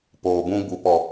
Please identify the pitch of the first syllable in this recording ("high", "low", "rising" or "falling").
low